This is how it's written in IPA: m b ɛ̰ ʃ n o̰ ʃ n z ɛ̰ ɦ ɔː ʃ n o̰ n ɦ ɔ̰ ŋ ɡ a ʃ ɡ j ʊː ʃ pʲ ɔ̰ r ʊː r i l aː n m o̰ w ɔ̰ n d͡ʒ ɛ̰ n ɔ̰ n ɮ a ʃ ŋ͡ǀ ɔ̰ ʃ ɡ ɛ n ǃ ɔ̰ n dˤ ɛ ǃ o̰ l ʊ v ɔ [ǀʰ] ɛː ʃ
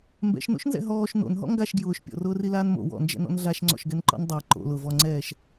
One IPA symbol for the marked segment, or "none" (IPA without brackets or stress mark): ŋ͡ǀ